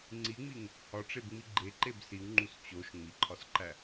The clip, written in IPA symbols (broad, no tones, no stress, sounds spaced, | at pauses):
ŋ͡ǀ i ŋ͡m i ŋ | h ɒ ʈ͡ʂ e b ŋ͡m i ɡ͡ǃ e ǃ e b s i w ŋ͡ǃ u s t͡ɕ o ʃ ŋ͡m i ǃʰ ɒ s ǃ æ